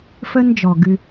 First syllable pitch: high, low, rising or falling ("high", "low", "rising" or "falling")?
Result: high